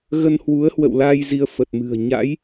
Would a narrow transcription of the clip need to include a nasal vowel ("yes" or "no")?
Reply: no